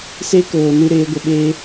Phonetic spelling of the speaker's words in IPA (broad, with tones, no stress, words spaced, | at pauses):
se˦koː˨nɨ˧ ɾeː˨˦ɡʷə˧ɓeː˦